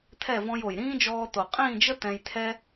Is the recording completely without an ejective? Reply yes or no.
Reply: no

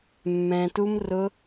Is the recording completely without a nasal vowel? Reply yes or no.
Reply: no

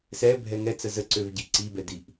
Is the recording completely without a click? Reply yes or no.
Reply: no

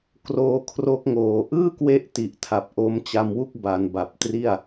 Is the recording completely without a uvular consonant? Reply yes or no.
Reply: yes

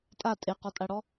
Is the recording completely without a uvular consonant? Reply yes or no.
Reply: no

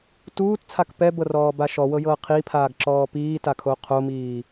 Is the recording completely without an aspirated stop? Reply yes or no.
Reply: no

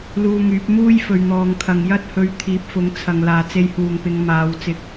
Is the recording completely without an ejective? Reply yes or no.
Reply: yes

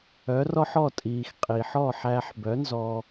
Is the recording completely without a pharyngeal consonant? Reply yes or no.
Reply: no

